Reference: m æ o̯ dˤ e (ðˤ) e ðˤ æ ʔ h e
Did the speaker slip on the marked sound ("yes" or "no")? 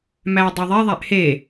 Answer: no